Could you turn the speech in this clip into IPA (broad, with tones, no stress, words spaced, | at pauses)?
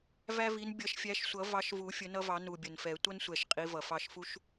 væ˦vi˨˦n bʲʌ˨˩˦ʃfʲæ˨˦ʃsʷʌ˨˩˦ vɑ˨˦ʃvu˨˩˦ fʲə˨˩˦nʌ˦vɑ˨˩˦ nu˨˩bʲə˨˩nfɛ˨˩˦ tʷʌ˦nsʷɛ˨˩ʃ qʼi˨˦vʌ˨˩fɑ˦ʃ fu˦ʃ